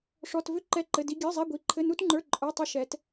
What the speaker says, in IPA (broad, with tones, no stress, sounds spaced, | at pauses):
ʂ ɔ˧˥˧ t v ʏ˦˥ ǃ ɛ˦˥ ǃ ɘ˧˥˧ d i˦˥ ɡʲ ə˞˧˥˧ zˤ i˧˥˧ ɡʷ i˧˥˧ ǃʰ ɘ˧˥˧ n u˦˥ t ŋ͡ǃ ə˞˧˥˧ ǃʼ ə˞˧˥˧ tˤ ɘ˦˥ ʃ ɛ˦˥ t